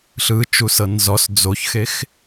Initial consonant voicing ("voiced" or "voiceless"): voiceless